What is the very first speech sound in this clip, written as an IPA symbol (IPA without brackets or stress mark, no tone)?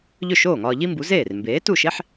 ʎ